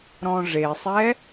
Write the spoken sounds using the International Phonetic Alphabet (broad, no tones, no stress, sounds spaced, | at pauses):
ɾ ɔ̃ ʐ e sˤ ɛ